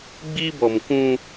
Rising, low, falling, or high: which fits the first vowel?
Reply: high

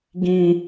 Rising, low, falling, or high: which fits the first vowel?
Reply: high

